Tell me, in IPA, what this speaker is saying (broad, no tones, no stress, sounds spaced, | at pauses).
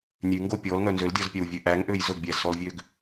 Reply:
nʲ ʉ ŋ ɡ o pʲ ɔ l ŋ œ n z ø l dʲ ɔ z pʲ æ w vʲ ø ʔ æ ŋ ʔ ø j z ɵ ɡ bʲ æ z s ɔ l vʲ ø ɡ